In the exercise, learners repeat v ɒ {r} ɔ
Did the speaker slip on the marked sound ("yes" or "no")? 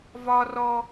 no